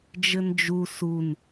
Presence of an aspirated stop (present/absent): absent